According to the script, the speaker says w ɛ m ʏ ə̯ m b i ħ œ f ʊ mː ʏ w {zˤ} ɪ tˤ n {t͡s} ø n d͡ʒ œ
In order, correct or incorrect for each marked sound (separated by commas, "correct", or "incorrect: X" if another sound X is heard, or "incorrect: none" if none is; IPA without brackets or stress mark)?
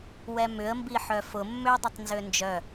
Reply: incorrect: dˤ, incorrect: z